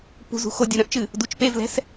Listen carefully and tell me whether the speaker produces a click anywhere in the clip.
no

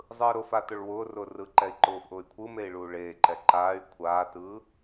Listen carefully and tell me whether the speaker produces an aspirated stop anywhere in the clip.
yes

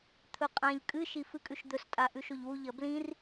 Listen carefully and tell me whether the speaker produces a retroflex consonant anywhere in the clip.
no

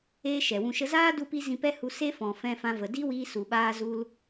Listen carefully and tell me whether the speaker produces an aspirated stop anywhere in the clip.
no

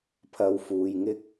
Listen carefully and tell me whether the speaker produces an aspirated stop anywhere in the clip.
yes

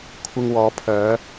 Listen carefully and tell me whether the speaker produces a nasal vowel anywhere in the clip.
no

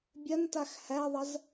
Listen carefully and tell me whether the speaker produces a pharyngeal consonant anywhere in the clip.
no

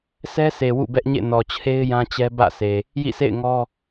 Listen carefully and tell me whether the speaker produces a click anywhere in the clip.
no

